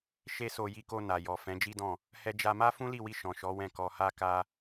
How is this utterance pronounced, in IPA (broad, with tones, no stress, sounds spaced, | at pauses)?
ʃ e˦ s o˧ j i˧ k o˧ n a˨ j ɔ˨ f ɛ̃˨˦ d͡ʒ i˦ d ɔ̃˦˨ | h ɛ˧ d͡ʒ a˧ m a˦ f ũ˦ l i˦˨ w i˧ ʃ ɔ̃˨ ʃ ɔ˨˦ w ɛ̃˦˨ k ɔ˧ h a˦ k a˦